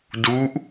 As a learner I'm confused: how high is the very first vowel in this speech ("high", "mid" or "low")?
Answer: high